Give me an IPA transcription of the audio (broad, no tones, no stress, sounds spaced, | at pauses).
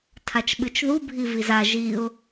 tʰ a t͡ʃ ɓ ɨ t͡ʃ ð u bʱ i v i z a ʒ i ʊ̯